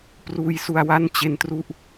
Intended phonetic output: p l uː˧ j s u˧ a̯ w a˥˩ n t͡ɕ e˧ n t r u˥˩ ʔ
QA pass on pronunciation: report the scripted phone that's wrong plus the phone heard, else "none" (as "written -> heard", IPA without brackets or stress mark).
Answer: l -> r